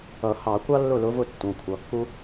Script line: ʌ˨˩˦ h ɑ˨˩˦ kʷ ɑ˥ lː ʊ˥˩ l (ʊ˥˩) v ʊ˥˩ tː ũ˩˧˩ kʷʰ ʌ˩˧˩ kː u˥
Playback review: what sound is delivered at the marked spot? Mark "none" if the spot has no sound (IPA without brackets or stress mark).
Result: ʊ˧˥